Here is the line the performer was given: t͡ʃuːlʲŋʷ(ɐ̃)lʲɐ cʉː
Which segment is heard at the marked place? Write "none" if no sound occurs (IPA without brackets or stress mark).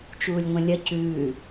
ɐ̃